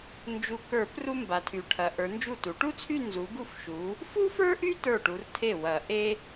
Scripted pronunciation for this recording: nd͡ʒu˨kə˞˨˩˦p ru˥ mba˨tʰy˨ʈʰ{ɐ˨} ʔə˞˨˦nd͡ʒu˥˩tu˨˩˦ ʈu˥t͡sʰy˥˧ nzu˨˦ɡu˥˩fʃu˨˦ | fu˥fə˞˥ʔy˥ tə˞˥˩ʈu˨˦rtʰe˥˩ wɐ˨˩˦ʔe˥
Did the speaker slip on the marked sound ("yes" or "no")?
no